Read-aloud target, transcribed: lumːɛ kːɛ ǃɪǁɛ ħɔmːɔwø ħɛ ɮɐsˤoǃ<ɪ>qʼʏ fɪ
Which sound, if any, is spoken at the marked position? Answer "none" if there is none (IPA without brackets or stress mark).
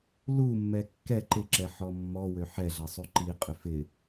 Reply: i